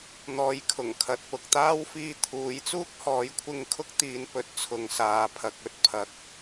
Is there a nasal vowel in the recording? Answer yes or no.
no